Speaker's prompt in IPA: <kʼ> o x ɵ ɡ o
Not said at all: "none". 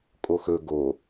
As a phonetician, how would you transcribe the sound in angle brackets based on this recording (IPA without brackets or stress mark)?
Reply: kʼ